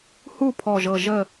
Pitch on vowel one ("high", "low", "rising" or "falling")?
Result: falling